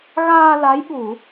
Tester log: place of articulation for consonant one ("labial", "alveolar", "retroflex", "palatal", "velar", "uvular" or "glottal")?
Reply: velar